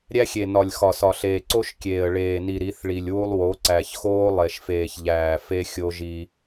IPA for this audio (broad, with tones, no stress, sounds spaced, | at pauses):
ɾʲ æ˦ xʲ e˨ n ɒ˨ lʲ x ɒ˨ s ɒ˨ ɬ eː˨ ǀ o˦ ʃ kʲ eː˨ ə̯ ɭ eː˨ n i˨ ɾ i˨˦ θ ɭ i˨ lʲ w u˦ lˠ w o˨˦ ǀ æ˨ ç x oː˦ lˠ e˨ ʃ f eː˨ ç ʎ æː˨ f e˦ xʲ o˦ ʒ i˦